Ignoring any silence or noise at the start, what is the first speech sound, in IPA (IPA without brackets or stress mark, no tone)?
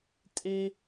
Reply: tʼ